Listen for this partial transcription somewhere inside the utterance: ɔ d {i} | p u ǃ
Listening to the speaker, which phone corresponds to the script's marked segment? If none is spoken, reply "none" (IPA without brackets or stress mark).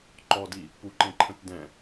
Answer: i